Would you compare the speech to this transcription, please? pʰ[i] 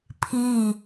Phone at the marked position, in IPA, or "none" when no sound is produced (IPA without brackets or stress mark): i